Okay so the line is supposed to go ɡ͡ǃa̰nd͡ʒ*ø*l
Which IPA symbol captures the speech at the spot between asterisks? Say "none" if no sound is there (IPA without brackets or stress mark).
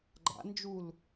u